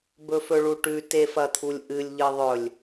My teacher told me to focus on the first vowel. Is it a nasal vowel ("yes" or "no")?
no